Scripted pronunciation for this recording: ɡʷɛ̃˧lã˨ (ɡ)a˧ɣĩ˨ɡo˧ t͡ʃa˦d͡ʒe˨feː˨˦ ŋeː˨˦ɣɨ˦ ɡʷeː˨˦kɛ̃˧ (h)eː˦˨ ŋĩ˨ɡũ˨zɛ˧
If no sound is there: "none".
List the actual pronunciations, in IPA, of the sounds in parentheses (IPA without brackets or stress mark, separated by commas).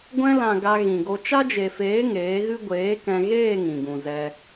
ɡ, ɣ